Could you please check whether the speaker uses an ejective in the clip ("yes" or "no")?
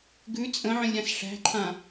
yes